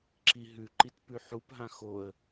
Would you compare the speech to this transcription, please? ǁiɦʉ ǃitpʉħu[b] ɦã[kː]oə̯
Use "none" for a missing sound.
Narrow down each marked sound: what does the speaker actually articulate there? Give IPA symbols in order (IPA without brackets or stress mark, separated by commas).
p, x